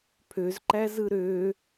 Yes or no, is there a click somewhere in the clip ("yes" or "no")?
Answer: yes